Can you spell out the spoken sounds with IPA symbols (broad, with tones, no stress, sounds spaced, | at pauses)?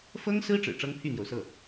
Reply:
f ɤ˥ ŋ s ɹ̩˥ ʈ͡ʂ ɻ̩˨˩ ʈ͡ʂ ɤ˥ ŋ pʰ y˥˩ n̪ j o˩ ʊ̯ s ɤ˥˩